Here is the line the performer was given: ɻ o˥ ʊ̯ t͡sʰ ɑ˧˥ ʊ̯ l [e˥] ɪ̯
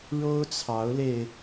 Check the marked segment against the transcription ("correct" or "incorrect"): incorrect